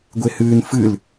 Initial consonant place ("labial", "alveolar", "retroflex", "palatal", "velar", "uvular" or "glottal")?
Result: velar